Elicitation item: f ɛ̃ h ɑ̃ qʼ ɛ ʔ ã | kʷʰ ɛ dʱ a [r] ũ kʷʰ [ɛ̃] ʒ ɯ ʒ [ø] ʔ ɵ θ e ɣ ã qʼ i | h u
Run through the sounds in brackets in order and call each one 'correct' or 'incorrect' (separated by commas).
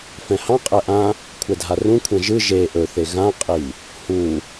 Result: correct, correct, incorrect